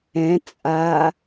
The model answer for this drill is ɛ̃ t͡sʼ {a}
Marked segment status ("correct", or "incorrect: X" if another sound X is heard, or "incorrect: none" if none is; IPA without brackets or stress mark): correct